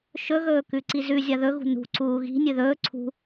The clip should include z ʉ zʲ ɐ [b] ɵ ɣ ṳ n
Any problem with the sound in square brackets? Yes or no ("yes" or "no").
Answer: yes